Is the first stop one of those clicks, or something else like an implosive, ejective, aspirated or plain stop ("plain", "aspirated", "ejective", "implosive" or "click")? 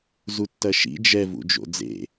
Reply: plain